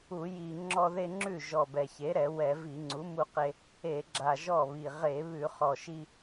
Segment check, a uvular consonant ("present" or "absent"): present